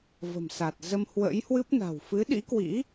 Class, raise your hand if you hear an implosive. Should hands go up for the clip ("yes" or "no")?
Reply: yes